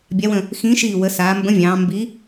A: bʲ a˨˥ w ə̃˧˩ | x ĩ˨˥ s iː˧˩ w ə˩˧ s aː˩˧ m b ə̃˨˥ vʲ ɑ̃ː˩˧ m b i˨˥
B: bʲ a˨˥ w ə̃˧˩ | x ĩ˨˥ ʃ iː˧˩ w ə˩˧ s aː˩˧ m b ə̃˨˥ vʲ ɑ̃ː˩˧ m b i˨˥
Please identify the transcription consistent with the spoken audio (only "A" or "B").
B